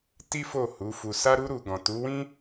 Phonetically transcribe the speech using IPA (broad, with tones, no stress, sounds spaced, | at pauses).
t i˦ f o˦˨ h u˨˦ f u˧ s a˦ ɾ u˦ ɾ u˧ ɡ ɔ̃˨ t u˨˦ w ĩ˦